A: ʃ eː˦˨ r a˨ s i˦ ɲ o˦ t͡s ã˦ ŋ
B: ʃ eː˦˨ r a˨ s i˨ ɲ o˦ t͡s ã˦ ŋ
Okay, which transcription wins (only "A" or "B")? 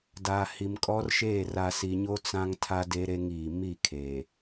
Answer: B